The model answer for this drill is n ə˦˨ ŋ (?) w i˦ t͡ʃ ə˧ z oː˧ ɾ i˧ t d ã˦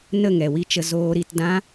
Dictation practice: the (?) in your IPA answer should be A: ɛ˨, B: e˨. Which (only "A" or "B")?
A